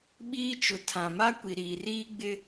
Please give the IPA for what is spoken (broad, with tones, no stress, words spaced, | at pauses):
ɓiː˦t͡ʃʊ˨ tʰã˨ma˦ kʷi˨ɾiː˨riː˦ɡ͡bɪ˦